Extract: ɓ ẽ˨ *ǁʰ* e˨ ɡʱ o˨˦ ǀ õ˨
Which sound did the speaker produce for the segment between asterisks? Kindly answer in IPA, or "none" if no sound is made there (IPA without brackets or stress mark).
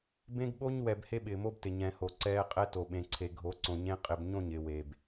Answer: ǀʰ